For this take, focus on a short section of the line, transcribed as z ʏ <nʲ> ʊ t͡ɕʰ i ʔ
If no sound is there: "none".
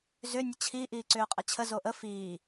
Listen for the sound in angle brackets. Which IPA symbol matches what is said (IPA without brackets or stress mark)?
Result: nʲ